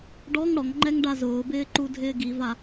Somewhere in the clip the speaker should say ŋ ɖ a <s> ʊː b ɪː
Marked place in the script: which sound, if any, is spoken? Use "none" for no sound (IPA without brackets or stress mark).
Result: z